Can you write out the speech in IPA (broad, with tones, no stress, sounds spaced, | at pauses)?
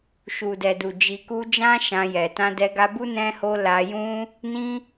ʃ u˨ d ɛ˨ d u˨ d͡ʒ i˨ k u˧ d͡ʒ ã˦ ʃ ã˧ j ɛ˨ t ã˧ d ɛ˧ ɡ a˧ b u˦ n ɛ̃˦ h o˦ l a˧ j ũ˦ | n ĩ˦